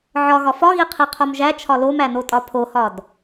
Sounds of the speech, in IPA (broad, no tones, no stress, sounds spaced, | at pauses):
ʕ ɒ ɣ ɒ f ɒ ɣ i qʰ i qʰ o m ʒ æ t͡ʃʰ ɒ l o m æ n o tʼ ɒ pʰ o h ɒ d